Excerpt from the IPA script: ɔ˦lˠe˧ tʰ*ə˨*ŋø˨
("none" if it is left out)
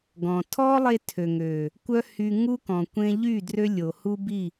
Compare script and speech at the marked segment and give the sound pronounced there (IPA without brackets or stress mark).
ø˨